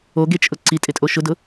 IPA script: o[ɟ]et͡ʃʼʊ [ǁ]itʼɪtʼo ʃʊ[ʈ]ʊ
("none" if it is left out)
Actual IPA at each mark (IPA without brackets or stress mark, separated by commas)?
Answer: ɡ, ǀ, d